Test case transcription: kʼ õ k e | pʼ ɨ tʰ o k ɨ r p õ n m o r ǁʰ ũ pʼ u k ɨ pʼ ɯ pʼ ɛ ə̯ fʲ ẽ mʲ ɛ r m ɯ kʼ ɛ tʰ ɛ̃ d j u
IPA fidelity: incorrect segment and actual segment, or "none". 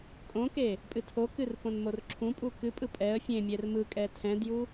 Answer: none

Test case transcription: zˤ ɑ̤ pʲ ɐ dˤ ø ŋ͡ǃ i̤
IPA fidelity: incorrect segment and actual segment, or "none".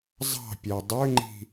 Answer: ɐ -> æ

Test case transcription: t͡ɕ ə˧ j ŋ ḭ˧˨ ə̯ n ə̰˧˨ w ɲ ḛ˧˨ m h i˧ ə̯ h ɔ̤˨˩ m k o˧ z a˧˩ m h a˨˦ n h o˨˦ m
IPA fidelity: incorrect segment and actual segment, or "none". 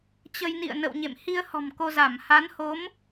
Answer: ŋ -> n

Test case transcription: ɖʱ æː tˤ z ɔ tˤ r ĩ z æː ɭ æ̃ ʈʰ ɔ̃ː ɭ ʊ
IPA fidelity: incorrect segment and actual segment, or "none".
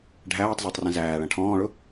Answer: none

